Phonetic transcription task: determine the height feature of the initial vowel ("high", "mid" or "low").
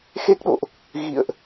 mid